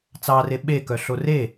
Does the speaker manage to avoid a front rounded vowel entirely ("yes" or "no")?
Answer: no